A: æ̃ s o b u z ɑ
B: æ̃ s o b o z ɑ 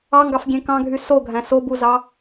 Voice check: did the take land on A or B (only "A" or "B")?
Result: A